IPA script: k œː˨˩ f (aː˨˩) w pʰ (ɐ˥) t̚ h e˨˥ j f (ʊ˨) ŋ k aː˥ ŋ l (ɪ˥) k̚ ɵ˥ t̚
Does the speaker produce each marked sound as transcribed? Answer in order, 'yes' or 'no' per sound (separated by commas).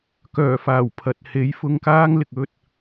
yes, no, no, no